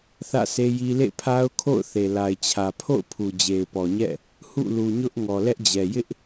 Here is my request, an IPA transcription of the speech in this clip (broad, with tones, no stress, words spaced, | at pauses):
θä̰˦˨se˦ji˦ lḛ˦˨pʰa˦ʊ̯kʰo̰˦˨ʊ̯θe˨ la˨ɪ̯t͡ɕʰä˨ pʰo̰˦˨ʊ̯pʰu˨ d͡ʑe˨ɪ̯pɔ˨ɲɛ̰˦˨ | hṵ˦˨lu˨ɲʊ˦ʔ ŋɔ˨lɛ˦ʔd͡ʑɛ˨ jɪ˦ʔ